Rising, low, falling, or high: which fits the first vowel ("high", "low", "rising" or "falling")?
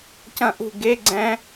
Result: falling